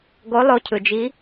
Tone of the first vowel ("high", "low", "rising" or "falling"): rising